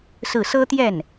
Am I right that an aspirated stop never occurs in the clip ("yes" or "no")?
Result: yes